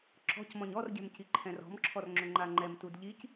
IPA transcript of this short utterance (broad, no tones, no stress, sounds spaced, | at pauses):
ǁ ɔ̤ c m ɔ̃ ɲ ɔ r ɟ ɛ̤ m c i ǃʰ ɛ̃ r ɔ̤ m ǁʰ ɔ r ŋ͡ǁ ʏ ŋ͡ǃ a ŋ͡ǃ ɛ m t u d ʎ i c